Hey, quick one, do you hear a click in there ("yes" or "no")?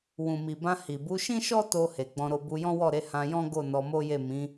no